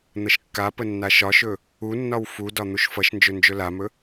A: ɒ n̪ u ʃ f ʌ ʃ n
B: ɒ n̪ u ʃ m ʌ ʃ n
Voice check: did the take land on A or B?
A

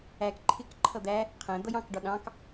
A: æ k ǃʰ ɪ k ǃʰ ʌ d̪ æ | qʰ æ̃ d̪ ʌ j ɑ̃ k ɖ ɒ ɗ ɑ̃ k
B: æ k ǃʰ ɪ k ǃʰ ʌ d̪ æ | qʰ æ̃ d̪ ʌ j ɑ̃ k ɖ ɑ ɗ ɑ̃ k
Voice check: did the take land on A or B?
A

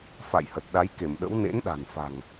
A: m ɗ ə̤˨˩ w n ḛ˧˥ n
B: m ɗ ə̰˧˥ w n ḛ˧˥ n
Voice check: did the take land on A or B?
B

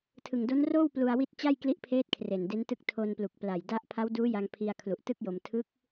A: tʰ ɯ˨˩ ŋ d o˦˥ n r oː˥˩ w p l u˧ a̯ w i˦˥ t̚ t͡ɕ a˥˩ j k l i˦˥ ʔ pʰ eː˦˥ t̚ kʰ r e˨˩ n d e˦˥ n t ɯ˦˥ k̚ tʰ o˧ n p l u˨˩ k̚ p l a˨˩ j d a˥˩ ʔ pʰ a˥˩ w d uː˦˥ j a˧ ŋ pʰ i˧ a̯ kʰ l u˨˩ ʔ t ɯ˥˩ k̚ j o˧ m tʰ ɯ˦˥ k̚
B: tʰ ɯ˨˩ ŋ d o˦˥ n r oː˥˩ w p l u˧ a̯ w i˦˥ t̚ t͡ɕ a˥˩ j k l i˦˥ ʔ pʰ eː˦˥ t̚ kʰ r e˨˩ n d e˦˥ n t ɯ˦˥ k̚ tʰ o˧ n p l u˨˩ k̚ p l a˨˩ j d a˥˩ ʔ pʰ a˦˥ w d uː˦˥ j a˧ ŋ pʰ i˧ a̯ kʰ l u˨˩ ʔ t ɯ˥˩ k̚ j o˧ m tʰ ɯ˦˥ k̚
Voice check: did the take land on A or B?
B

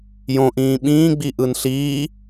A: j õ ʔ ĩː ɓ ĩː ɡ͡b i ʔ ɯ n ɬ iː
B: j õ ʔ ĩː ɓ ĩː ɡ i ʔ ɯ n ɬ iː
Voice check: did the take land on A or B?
A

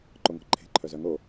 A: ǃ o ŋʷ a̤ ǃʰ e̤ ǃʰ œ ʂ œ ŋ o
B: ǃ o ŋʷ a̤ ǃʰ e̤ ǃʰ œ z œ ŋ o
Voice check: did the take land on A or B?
B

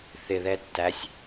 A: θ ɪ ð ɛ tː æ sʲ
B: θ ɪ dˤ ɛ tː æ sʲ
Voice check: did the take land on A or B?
A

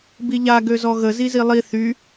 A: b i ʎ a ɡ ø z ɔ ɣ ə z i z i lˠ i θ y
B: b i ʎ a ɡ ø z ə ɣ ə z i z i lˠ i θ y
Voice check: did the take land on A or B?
A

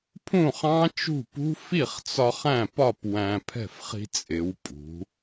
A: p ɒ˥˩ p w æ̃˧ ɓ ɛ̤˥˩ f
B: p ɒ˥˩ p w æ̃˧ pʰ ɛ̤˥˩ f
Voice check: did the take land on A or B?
B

